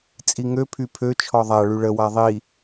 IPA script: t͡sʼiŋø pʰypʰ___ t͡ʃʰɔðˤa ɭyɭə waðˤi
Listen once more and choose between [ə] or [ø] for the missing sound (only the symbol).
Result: ø